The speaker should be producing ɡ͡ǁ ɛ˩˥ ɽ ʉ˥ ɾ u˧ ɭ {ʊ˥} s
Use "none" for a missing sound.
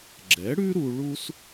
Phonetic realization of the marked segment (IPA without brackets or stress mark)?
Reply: u˥